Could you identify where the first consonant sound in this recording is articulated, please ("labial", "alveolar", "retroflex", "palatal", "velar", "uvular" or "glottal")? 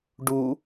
retroflex